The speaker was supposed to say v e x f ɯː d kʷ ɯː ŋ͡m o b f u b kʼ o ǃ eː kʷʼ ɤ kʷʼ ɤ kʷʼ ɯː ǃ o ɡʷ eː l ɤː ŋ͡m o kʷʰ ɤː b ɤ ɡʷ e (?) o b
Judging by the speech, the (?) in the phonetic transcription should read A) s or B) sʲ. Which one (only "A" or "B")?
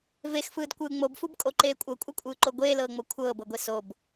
A